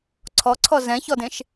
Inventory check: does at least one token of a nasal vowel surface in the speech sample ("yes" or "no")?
yes